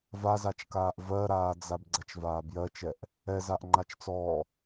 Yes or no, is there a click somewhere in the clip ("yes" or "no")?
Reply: yes